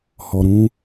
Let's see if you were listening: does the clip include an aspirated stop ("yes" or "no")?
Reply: no